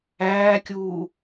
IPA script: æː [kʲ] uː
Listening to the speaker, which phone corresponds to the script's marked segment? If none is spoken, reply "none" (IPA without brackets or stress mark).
kʲ